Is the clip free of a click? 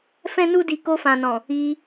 yes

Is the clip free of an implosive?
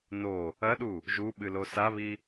no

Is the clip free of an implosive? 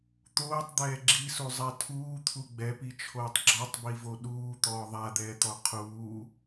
no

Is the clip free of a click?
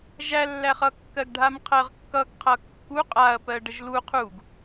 yes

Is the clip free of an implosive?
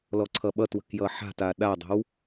no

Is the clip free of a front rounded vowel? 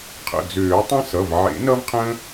no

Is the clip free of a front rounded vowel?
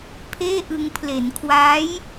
yes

